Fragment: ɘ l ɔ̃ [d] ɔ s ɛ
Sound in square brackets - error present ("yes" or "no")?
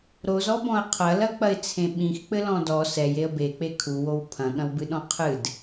no